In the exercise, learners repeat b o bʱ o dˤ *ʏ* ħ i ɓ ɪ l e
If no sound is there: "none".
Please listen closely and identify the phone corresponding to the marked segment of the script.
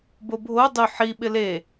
ʏ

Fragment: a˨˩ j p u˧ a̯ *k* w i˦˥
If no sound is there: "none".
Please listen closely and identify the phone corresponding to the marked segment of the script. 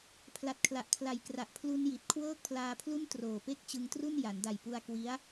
k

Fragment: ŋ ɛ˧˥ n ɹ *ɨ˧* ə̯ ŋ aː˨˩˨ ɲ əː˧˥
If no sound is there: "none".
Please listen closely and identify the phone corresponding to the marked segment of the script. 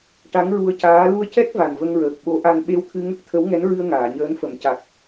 ɨ˧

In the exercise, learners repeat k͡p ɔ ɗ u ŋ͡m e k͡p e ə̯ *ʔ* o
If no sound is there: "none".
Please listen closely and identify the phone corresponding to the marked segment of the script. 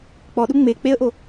ʔ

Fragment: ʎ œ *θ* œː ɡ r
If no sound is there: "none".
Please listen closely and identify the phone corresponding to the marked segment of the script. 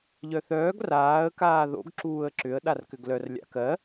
θ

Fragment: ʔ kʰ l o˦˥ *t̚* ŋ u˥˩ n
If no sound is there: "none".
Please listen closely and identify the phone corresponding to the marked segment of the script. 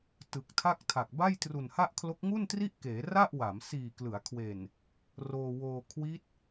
k̚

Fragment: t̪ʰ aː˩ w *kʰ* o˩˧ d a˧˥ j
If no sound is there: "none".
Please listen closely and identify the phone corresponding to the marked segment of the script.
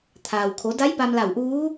kʰ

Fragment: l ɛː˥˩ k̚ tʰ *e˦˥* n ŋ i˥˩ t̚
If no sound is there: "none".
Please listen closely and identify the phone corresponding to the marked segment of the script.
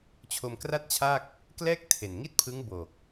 e˨˩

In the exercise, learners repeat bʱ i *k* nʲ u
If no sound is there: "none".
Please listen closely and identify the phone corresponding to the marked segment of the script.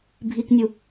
k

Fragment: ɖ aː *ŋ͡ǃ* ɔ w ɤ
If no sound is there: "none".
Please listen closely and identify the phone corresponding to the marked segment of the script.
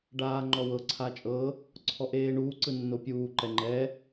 ŋ͡ǃ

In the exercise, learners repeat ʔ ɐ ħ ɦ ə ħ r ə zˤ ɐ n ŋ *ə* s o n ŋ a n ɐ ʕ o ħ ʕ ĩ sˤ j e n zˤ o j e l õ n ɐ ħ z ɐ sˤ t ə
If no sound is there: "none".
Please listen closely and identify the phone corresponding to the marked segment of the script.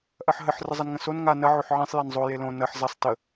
ə̃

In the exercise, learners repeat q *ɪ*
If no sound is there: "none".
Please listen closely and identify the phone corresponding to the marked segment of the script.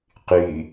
y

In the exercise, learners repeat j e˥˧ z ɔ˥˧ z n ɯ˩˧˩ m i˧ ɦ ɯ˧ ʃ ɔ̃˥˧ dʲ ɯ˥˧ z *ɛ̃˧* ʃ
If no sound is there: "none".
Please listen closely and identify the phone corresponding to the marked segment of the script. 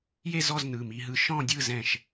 ɛ̃˥˧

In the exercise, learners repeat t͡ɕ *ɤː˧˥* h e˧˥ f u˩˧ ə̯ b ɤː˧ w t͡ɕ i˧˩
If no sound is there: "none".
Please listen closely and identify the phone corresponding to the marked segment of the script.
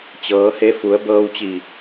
ɤː˩˧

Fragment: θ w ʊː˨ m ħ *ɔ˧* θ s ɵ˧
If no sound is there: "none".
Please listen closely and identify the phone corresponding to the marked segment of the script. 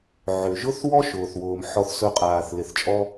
ɔ˧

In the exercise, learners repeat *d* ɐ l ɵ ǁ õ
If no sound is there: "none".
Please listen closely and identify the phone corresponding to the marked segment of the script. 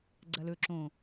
ɡ͡ǀ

